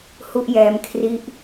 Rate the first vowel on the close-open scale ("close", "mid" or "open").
close